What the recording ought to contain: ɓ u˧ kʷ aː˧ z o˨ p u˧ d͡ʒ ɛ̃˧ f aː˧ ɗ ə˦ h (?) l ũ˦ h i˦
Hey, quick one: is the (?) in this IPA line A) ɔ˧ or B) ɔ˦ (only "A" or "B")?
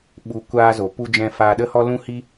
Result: B